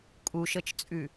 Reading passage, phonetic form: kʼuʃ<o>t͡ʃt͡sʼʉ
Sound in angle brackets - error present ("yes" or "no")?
yes